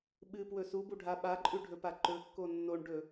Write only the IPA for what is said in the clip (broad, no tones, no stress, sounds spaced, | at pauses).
ɓ ɨ p w ɵ s u b u ɖʱ a ɓ a ǃʼ ʉ ɖʱ ɵ p a ǃ ɵ kː o nː o ɳ ɖ ɵ